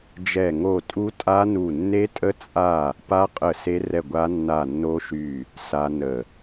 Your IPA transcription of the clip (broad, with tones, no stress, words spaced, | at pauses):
d͡ʒɛ˦˨ ŋo˦˨tʼu˦˥tʼa˦˥ nu˦˨ nːe˦˥tʼə˦˥ t͡sʼa˦˨ | pa˦˥ qʼə˦˨se˦˥rɛ˦˨ɡʷa˦˥ nːa˦˨nːo˦˥ʃy˦˨ | sa˦˥nə˦˨